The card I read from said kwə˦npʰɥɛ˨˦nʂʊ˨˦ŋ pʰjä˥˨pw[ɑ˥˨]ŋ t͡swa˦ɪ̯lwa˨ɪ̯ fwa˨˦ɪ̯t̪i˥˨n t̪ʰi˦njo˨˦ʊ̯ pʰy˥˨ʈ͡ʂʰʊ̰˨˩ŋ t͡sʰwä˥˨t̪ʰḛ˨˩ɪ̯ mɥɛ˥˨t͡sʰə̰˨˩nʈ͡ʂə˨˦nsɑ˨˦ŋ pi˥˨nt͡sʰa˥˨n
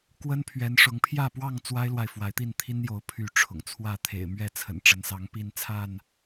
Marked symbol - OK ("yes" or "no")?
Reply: yes